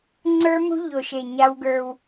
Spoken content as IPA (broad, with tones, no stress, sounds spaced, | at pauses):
ŋ͡ǀ ə˞˦ m ṳ˦ ʎ o˨ ʃ e˨ ɲ a˦ w ɡ ə˞˦ w